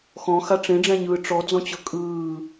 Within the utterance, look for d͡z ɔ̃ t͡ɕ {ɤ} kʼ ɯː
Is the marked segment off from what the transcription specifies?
no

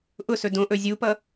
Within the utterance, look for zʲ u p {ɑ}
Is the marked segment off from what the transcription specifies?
yes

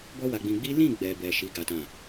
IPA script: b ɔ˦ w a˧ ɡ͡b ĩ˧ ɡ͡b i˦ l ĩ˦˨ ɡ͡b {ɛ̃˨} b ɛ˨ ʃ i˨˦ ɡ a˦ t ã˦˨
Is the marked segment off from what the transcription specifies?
yes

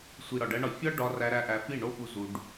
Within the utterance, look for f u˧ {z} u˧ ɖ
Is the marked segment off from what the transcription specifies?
no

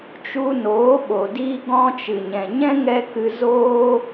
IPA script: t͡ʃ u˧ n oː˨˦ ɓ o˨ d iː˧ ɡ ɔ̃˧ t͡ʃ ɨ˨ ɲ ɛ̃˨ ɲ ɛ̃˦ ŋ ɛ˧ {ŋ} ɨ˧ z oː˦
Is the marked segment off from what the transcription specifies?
yes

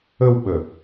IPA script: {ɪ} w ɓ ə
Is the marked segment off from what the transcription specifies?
yes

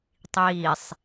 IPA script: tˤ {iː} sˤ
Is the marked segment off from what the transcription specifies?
no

